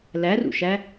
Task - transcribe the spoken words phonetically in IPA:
l æ r ṵ ʃ æ

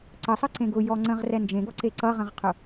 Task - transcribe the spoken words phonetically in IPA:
ǀ ə sˤ ə ǀ ẽ ɡ ʊ j ɔ ŋ͡ǀ ə̃ ʁ r ɛ n d͡ʒ ẽ ɡ ɔ ǀ e ǀ ʌ ʁ ə̃ ʁ qʰ ʊ

